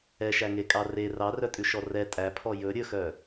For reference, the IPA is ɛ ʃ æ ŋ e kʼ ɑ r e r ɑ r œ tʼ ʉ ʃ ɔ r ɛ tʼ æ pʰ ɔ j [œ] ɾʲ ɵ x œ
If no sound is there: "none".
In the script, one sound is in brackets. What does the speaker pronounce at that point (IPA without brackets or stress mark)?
ɵ